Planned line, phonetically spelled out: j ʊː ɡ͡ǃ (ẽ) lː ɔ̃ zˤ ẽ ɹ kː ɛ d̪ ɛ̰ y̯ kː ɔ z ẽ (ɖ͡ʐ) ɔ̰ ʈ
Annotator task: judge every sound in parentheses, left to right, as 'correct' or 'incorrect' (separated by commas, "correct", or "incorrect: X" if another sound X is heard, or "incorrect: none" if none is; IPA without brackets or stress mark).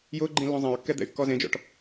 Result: incorrect: ĩ, incorrect: d͡ʒ